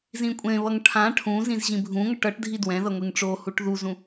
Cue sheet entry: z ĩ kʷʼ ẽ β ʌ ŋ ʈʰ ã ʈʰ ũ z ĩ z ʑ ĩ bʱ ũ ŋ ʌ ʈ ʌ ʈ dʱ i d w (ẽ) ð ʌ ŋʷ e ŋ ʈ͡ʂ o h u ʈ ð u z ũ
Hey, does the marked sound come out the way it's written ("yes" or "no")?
no